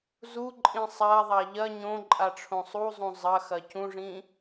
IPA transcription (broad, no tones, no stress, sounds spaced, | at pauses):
z u ǃʼ ĩ sˤ a ðˤ a ʎ ɐ ɲ õ ǃʼ a ʈ͡ʂʰ õ sˤ u zˤ ũ zˤ ɐ x ɐ c ũ ʐ ĩ